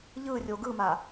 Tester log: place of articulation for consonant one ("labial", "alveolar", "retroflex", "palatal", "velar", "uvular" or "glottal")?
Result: palatal